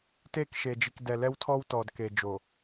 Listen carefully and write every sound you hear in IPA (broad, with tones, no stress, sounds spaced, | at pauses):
t e˦˨ k ʃ e˨ d͡ʒ i˨ k d ɛ˨ l ɛ˦ w tʰ ɔ˦ w t ɔ˨ d k e˨ d͡ʒ o˨